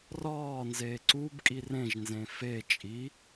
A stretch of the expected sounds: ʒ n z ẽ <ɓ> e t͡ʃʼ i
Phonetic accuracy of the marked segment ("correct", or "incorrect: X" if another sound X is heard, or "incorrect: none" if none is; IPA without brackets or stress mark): incorrect: f